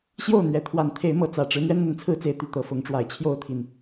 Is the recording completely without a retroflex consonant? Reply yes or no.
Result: no